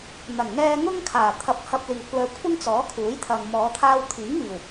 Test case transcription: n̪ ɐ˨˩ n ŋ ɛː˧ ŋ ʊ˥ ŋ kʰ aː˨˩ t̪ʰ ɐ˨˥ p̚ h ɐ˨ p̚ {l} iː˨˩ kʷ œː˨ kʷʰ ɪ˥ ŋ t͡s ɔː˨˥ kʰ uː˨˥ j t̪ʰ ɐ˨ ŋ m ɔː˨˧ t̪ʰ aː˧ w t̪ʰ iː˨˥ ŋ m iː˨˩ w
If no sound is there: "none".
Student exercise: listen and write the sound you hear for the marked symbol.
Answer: l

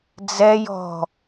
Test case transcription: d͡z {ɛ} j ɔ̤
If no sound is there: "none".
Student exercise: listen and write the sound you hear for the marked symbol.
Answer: ɛ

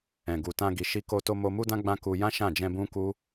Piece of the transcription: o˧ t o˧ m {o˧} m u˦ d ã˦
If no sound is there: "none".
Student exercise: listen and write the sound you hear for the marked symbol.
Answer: o˧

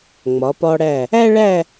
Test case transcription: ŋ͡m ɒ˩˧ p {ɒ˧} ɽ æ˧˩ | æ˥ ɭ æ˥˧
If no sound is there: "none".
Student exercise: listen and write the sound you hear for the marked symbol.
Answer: ɒ˧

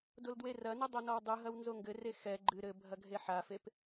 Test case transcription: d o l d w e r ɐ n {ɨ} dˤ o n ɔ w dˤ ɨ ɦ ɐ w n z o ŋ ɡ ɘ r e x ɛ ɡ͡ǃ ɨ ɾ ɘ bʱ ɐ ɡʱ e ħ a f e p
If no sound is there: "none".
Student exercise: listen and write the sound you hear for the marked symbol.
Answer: ɨ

